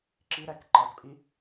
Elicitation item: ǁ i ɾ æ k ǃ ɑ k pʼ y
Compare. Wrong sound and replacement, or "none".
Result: y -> i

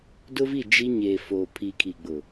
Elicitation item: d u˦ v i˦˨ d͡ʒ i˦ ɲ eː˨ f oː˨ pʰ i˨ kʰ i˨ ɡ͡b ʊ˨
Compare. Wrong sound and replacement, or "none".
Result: u˦ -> ʊ˦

